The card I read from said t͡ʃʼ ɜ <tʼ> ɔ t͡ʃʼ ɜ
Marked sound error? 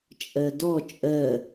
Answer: yes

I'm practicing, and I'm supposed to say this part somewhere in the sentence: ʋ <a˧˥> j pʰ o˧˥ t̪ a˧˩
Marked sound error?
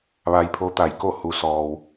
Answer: yes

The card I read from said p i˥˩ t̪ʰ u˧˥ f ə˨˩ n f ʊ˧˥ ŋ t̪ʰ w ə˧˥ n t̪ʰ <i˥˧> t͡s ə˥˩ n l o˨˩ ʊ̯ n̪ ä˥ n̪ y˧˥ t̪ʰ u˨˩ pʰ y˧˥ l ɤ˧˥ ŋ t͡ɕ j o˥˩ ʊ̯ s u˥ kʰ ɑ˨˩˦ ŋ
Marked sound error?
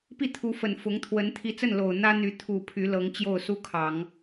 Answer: yes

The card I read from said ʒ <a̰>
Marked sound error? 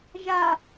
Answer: yes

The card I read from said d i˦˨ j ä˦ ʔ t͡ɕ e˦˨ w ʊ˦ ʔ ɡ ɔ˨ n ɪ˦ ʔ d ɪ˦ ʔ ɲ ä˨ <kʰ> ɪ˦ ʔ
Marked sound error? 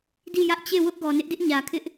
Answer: no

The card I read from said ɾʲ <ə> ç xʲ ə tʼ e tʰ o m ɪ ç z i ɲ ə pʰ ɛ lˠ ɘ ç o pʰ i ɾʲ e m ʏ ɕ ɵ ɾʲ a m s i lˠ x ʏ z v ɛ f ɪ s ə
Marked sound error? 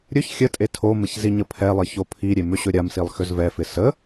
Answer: yes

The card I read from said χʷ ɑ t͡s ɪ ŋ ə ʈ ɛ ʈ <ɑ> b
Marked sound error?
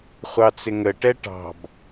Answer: yes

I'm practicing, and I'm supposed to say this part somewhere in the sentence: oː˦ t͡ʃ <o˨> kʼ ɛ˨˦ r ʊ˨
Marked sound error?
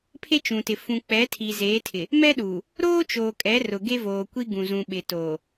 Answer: yes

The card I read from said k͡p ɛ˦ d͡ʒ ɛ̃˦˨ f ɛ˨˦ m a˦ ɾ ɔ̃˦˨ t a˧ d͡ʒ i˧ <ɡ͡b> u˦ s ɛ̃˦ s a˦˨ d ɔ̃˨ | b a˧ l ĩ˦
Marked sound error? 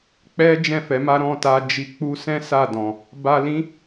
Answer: yes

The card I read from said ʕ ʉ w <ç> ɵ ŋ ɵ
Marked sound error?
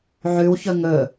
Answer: no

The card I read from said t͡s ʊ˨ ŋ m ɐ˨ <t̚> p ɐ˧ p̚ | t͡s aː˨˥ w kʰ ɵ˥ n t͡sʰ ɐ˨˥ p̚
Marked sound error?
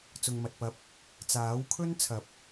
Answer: no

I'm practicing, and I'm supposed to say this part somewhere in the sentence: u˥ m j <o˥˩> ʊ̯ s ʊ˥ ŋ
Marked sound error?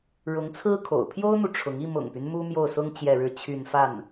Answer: no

